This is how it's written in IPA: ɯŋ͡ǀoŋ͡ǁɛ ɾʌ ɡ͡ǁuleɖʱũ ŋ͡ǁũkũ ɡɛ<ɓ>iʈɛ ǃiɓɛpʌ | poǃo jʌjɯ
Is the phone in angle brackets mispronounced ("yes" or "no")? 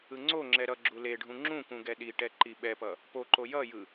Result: yes